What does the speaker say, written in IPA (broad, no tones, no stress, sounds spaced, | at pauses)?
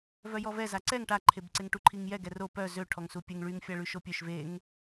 v œ j ɔ v ɛ z a ǀ ɛ ŋ ʈ a ǃʰ e b ǀ e ŋ ʈ u ǃʰ i ŋ j ɛ ɡ ɛ r o p œ z ø ʈʰ ɔ ŋ s u pʲ e ŋ ɭ y ŋ fʲ a ɭ y ʃ o pʲ ø ʃ v e ŋ